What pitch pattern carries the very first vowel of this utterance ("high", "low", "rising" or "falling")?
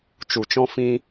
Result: low